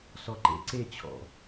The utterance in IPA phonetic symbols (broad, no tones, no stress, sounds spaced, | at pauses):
s ɔ ǃ ḛ ǀ e t͡ɕʰ ɔ̰